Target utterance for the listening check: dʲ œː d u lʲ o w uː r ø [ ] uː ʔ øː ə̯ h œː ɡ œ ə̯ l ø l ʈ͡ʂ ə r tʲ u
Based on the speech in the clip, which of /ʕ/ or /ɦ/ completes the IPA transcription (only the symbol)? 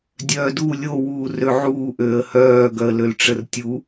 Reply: ʕ